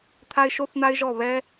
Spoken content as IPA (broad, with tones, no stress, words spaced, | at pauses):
t̪ʰa˦ɪ̯ʃo˦θn̪a˦ɪ̯ʒɔ˦˨ βɛ˦